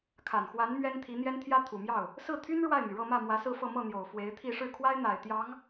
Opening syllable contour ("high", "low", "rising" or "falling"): low